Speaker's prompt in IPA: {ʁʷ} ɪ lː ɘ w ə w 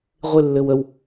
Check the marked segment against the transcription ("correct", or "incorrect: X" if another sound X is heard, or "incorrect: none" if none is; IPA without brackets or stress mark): correct